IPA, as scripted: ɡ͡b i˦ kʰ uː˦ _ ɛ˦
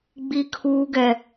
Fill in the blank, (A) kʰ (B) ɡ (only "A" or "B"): B